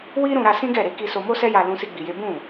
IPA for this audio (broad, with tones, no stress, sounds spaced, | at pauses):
w i˦ ɾ ũ˧ ɾ a˧ s ĩ˦ ɡ ɛ˦˨ ɾ e˧ k i˧ s o˧ m o˦ s ɛ˦ j a˧ l ũ˦ s i˦ ɡ͡b i˧ j e˦ b ũ˦˨